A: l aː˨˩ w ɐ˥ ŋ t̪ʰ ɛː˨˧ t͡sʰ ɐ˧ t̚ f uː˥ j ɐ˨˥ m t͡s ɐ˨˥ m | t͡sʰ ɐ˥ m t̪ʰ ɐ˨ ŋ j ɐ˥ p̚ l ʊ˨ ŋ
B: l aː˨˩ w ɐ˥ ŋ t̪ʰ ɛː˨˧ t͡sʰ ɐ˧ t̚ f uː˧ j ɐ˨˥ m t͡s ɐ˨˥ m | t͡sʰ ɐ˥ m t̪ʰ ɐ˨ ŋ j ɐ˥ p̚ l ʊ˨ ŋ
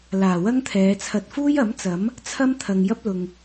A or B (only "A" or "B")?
A